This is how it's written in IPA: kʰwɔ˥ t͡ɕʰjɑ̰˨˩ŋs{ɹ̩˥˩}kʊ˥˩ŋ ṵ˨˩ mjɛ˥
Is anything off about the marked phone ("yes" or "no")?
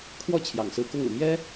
yes